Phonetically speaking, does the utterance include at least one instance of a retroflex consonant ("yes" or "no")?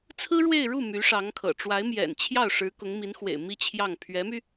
yes